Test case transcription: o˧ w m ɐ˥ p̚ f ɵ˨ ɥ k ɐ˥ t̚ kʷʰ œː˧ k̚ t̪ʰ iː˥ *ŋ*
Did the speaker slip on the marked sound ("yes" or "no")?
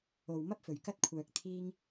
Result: no